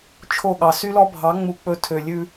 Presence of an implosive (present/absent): present